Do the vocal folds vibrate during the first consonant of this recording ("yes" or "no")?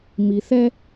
yes